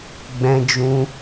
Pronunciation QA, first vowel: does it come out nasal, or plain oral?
nasal